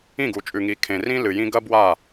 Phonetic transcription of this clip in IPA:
ĩ˦˨ ɡ u˨ t͡ʃʼ ʉ˨ ŋ i˨ kʰ ẽ˨ r ĩ˦ l ɨ˨ j ĩ˦ ɡ ɐ˦ b w a˦˨

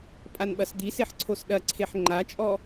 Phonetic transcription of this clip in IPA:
pʼ a n ɓ ɐ s d̪ i s e ħ ǀʰ o s ɗ ɐ ǀʰ e ħ ŋ͡ǃ a t͡ʃʼ ɔ

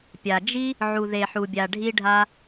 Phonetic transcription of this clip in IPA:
pʲ a˨ d͡ʒ i˦ | ʕ u˨ ð e˨ ħ u˨ bʲ a˨ ɖʱ i˦ ɖʱ a˦

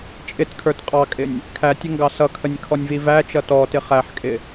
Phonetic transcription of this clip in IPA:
t͡ʃʼ ɪ t kʰ ə˞ t qʼ ɑ kʼ ɪ nʲ | kʰ æ tʲ ə ŋ ɡ ɑ s ʌ kʰ ə nʲ kʰ ɔ nʲ v i v æ t͡ʃ ʌ t ɔ t ɪ χ æ ħ kʼ ɪ

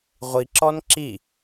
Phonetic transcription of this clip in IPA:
ʁʷ i ǁ ɔ n ǁ i

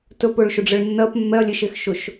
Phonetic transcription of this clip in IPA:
t ɵ p ɵ ɭ ʃ ʊ ɖ͡ʐ ə ɭ nː ɜ p mː ɛ ɐ̯ lʲ e ʃ e x ʃ ʊ ʃ

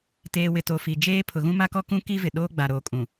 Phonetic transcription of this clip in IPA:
t eː˨ w ɪ˨ t o˨ f i˨ d͡ʒ eː˦ pʰ ʊ˨ ɣ ũ˦ m a˦ k ɔ˦ k ũ˦ k i˦ v ɪ˨ ɗ oː˦ ɡ͡b a˨ ɾ oː˨ kʼ ũ˨

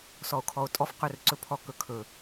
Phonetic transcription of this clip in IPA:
s ɔ o̯ kʰ ɔ o̯ tʼ ɔ f q ɵ r ǀ ɵ pʰ ɔ k ɵ kʰ ɵ

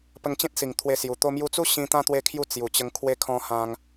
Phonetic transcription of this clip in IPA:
p ə˧ ŋ t͡ɕ ẽ˦ t̚ s i˨˩ ŋ t̪ʰ w e˧ s j u˨˩ t̪ o˧ m j u˧ t͡s u˦ ɕ ĩ˧ t̪ ã˦ t̪ w e˦ kʰ j u˥˧ t͡s j u˨˩ t͡ɕ ə˧ ŋ kʰ w e˧ kʰ ɔ̃˧ h ã˧ ŋ

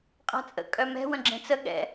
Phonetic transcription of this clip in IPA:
qʼ a̤ t͡sʼ ə̰ kʼ œ m ɛ̤ w ə̃ ɡ͡ǁ ẽ t͡s ə ɠ ɛ̰

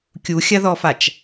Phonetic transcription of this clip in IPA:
kʲ u xʲ ɐ ð ɔ f a t͡ʃ

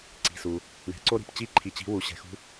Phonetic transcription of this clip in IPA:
ǀ i̤˩ s u˩ | ɳ ɛ̤˩˧ ǀ o˧ ɾ i̤˩ p t͡ɕ i˧˥ ǃʰ i˩ t͡ɕ i̤˩˧ w u˩ ɕ ɛ̤˩˧ x ṳ˧

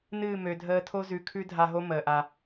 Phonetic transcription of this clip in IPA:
n ɨː˦˨ m ø˨ dʱ əː˧ tʰ o˦ z ʉ˨ kʰ ʉ˦ dʱ a˧ ɦ o˦ m əː˨ ʔ a˧

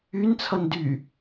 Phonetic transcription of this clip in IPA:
y n t͡sʰ ʌ n d y

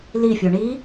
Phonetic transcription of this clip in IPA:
l i fʲ o ɳ i

